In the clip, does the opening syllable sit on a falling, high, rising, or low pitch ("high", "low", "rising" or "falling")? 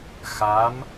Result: rising